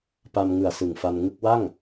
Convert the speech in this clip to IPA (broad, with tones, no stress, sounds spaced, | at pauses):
p a˧ m ŋ ɯ˨˩ a̯ s ɯ˨˩ ŋ f a˧ n ŋ ɯ˥˩ k̚ w a˥˩ ŋ